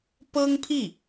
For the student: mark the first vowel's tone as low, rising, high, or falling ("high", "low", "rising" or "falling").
high